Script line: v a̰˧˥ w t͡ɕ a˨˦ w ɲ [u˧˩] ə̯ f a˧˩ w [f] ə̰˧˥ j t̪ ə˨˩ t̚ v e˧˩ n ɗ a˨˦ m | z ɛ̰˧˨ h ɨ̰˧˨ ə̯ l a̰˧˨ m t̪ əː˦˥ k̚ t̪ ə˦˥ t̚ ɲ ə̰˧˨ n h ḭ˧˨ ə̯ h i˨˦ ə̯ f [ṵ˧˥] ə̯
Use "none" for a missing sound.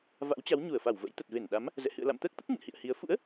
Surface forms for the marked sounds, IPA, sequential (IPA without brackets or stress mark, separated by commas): u˧˩, v, ṵ˧˥